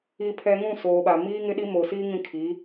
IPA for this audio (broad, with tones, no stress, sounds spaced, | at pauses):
i˨ pʰ ɛ˨ ŋ ũ˦˨ s oː˨ ɓ a˨ m iː˦ ŋ ɪ˦ ɗ i˦ m oː˨ s iː˦ ŋ ĩ˦ kʰ i˨˦